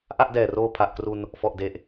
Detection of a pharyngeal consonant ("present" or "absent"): absent